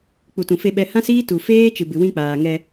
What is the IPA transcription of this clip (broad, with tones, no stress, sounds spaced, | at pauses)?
k͡p u˨ t ũ˨ f e˧ ɓ ɛ˧ h ã˦ s iː˦ t u˨ f eː˦ t͡ʃ ɨ˨ b ɨ˨ w ĩ˧ k͡p aː˨ ŋ ɛ˧